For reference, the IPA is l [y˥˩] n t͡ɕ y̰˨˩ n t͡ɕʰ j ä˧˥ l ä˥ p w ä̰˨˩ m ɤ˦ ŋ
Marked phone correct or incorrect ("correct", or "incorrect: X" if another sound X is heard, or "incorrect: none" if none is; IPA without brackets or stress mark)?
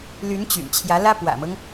incorrect: y˧˥